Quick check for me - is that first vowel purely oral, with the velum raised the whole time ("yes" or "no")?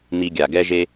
yes